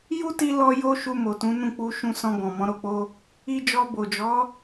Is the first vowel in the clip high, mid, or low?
high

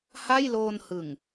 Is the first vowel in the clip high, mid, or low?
low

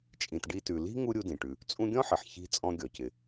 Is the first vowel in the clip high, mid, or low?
high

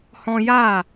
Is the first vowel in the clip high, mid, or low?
mid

